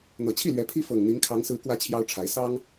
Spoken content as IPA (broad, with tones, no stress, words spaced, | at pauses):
n̪ɤ˨˩t͡ɕʰi˥˨lɥɛ˨˦ pʰi˦fɤ˨˩ŋn̪i˨˦ŋ kʰɑ˨˦ŋ sɹ̩˨˦kwä˨˦ t͡ɕʰjɑ˦ʊ̯ʈ͡ʂʰa˨˦ɪ̯ sɑ˦ŋ